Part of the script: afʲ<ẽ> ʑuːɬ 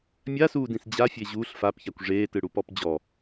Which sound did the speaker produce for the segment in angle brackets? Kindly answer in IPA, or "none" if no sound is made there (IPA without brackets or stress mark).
e